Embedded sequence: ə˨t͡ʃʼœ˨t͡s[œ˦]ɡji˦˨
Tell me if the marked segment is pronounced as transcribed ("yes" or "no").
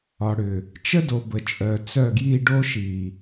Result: no